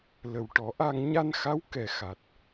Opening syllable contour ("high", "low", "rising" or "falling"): low